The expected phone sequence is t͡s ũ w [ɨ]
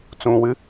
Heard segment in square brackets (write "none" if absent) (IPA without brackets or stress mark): ɨ